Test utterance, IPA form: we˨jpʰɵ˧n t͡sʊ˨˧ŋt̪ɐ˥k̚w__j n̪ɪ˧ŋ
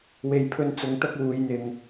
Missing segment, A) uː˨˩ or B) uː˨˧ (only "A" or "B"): B